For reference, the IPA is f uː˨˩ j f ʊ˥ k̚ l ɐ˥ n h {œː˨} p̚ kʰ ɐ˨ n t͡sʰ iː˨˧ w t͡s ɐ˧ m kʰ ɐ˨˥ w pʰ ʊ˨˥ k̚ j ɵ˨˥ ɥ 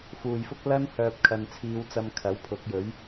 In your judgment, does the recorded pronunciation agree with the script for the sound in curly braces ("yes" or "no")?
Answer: yes